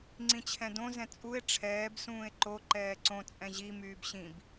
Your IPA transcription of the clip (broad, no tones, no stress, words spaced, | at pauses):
ŋ͡ǀĩt͡ɕʰɛ̃dõ zɛ̃t͡sʼue̯ ʈ͡ʂʰɛːb sũːe̯ǃo ǃɛːǀõ t͡sʼɛ̃ʑi myːbɕĩb